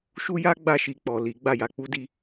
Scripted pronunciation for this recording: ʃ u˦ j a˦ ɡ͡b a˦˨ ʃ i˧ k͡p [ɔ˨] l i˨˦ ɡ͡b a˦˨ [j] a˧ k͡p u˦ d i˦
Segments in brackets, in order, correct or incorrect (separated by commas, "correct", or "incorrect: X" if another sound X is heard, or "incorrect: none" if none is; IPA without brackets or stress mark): correct, correct